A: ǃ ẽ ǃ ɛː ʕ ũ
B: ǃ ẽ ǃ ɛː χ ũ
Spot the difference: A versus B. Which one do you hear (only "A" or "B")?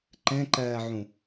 A